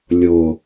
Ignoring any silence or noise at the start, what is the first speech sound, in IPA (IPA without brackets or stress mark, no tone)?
lʲ